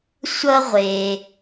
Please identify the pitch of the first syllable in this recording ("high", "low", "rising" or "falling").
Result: high